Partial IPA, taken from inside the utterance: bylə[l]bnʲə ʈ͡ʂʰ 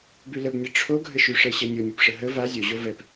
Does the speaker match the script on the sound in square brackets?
no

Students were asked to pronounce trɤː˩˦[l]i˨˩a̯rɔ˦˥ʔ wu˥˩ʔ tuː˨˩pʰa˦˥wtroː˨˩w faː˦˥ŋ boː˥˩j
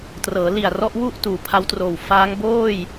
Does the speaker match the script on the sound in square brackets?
yes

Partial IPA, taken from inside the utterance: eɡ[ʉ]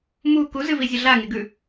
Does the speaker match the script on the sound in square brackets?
yes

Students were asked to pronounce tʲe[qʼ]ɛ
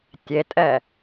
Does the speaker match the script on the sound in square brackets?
no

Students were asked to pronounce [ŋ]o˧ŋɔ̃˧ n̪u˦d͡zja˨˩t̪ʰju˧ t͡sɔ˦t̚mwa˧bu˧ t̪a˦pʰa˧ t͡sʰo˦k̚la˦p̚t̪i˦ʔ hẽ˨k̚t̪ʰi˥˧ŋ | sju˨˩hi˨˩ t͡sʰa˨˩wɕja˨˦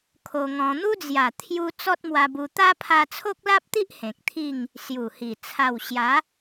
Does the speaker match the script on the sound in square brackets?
no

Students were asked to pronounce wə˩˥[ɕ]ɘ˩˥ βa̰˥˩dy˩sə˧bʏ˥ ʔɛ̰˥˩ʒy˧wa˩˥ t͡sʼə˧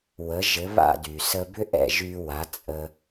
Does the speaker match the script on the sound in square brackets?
no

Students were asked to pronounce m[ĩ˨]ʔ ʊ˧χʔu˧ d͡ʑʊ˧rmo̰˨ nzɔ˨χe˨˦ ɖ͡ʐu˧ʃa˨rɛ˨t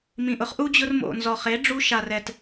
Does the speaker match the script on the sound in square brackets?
yes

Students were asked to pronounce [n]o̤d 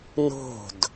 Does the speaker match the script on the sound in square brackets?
yes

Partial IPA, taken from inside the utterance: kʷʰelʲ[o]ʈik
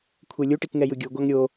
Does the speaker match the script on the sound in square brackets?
no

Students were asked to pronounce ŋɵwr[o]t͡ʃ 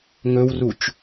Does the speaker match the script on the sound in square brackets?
no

